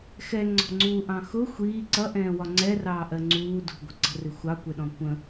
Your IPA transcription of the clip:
x ɛ ŋ͡ǀ ɔ̤ ŋ͡ǀ uː ʔ ɑ̃ x ʊ xʷ iː ǀ ʌ ʔ ɛ̃ː w ɒ ŋ͡ǀ ɛ r ɑː ʔ ɜ ŋ͡ǀ uː d ṳ ɡʷ ə̤ ǀ ə̤ r ɪ xʷ ɑ kʷ ɛ ɗ ɔ̃ kʷ ə̃

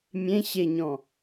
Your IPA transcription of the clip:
mʲ ẽ ɕ e ɲ ɔ̃

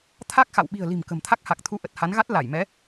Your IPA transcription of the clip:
t̪ʰ a˦˥ k̚ x a̰˧˨ w ɓ i̤˨˩ ə̯ l i̤˨˩ m k ə̤˨˩ m t̪ʰ a˦˥ k̚ h a˨˩ k̚ t̪ʰ u˧ ʔ ə˨˩ t̚ h a˨˦ n ɣ a˦˥ t̚ l a˧˩ j m ɛ˨˦

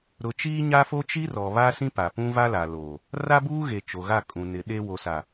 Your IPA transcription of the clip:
ɾ ʊ˨˦ t͡ʃ iː˦ ɲ a˦ f o˦ t͡ʃ i˦ r ɔ˨ β a˦ s ĩ˦ p a˨ p ũ˦ v a˦ l a˨ l oː˨ | r a˦ b uː˦ ɣ e˨ t͡ʃ o˨ ɣ a˦˨ kʼ ũ˨ n ɪ˨˦ ɗ e˦ w o˨ s a˨

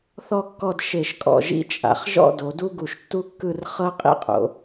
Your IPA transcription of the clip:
θ ɔ˥˧ kː ɔ˥˧ d ʃ e˧˩ ʃ kʼ ɔ̰˧˩ ʒ ḭ˥˧ t͡ʃʼ a̰˩˧ χ ʒ ɔ̰˥˧ d o˩˧ d u˥ ɡ u˧˩ ʃ tː u˥ kː ɯ˥˧ r χ ɤ˥ qʼ ḭ˥ qʼ o̰˩˧

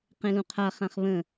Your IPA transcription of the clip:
q ẽ l ũ qʰ a χ ã χ β ə̃

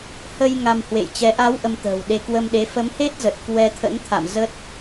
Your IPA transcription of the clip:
h ə˧ j ŋ a˧ m h w ḛ˧˨ j t͡ɕ ɛ˨˦ ʔ a˨˦ w ʔ ə˧ m t̪ ə̤ː˨˩ w ɗ e˧ k w ə˧ m ɗ e˨˦ f ə˨˦ m h e˦˥ t̚ z ə˨˩ t̚ k w ɛ˧ t̪ʰ ə̰˧˥ n t̪ʰ a̰˧˨ m z ə˦˥ t̚

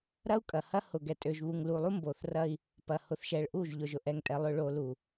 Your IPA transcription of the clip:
ɾ ɐ˦ u̯ kʼ ɐ˨ h ɐ˦ h ʊ˨ ɡ ɛ˨ tʼ ø˨ ʒ β u˨ ŋ l u˨ lˠ u˦ m b o˨ θ r ɐ˦ i̯ | p ɐ˨ h ʊ˨ θ ʃ ɛ˨ ɭ ʔ u˦˨ ʒ ʎ ʊ˨ ʒ ʊ˨ ʔ ɛ˨ ŋ tʼ ɛ˨ lˠ ʏ˨ ɭ o˨ l u˨

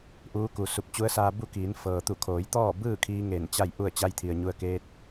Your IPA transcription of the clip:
ʔ uː˧˥ k u˩ s u˧˩ p̚ t͡ɕ u˧˥ ə̯ s aː˧ b u˥˨ k iː˩˧ n f ɤː˩ t̪ u˧˩ kʰ oː˩˧ j t̪ ɔː˥˨ b ɯː˥˨ kʰ iː˧ ŋ e˧˩ n t͡ɕ a˥˨ j ʔ u˥˨ ə̯ t͡ɕ a˧ j t̪ʰ i˩ ə̯ ɲ u˧ ə̯ k eː˧˥ t̚

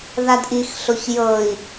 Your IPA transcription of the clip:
ð a d ʔ i x ɬ o ç j ɤ i̯

